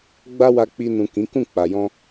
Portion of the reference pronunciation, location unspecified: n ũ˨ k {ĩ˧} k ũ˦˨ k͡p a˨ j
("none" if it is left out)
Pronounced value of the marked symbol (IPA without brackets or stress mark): ĩ˨˦